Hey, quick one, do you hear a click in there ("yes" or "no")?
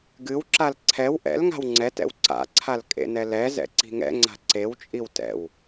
yes